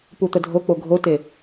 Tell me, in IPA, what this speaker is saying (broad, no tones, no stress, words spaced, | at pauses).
put̪ədʱok͡po ɡʱote